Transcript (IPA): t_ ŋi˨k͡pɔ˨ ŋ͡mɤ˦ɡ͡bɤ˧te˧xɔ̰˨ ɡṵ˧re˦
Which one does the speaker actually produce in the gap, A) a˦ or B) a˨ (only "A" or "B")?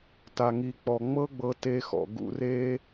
B